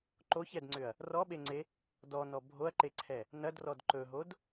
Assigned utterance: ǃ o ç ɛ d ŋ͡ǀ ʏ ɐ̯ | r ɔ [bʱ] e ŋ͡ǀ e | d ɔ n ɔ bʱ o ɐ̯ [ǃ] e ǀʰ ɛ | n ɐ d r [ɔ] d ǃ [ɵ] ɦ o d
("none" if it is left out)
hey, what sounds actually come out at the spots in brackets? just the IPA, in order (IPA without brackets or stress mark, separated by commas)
ɓ, ǃ, ɔ, ɵ